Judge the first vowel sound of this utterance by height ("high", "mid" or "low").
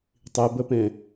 high